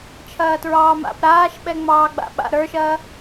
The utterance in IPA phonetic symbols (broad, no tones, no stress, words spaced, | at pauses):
t͡ʃʰɐːtɹɑːma̰p ɾaːʃɓɛ ŋ͡mɑːɡ͡ba̰ɓa̰ ɾə˞ʃɐː